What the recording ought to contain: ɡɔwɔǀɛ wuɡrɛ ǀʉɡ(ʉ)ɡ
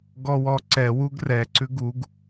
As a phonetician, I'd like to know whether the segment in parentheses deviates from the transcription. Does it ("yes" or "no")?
yes